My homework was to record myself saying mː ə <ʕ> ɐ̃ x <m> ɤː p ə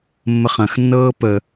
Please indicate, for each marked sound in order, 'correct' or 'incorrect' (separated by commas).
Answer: incorrect, incorrect